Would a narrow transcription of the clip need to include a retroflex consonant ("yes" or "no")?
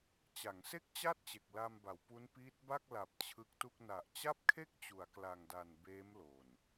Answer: no